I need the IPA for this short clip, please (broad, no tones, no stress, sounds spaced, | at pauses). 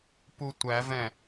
p u tʷ æ v ɛ̃